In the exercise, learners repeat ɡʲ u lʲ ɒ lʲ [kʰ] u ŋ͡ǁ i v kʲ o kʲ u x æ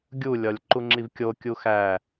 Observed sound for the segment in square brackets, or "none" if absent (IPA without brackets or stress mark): ǃ